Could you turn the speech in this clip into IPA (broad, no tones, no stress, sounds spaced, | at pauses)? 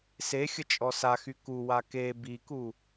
s e xʲ ə t͡ʃʼ ɔ s a x y k u w a k e b i k u